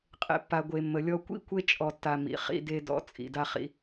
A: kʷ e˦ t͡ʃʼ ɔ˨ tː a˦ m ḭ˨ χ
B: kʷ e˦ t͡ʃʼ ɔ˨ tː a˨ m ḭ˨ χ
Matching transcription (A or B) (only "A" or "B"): B